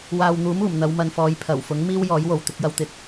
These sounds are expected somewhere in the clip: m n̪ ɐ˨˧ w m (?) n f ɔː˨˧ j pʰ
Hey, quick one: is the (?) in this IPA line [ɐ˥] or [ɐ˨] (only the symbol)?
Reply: ɐ˨